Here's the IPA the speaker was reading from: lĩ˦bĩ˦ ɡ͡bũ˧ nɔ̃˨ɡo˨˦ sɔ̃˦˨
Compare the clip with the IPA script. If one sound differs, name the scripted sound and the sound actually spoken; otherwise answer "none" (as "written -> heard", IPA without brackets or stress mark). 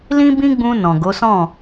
none